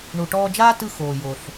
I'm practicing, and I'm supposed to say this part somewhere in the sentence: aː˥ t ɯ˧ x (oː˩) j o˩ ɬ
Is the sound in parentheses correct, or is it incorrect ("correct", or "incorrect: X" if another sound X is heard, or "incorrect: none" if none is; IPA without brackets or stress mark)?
correct